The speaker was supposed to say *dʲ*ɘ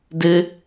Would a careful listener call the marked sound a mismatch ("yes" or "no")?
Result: yes